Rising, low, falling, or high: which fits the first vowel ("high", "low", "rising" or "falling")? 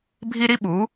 high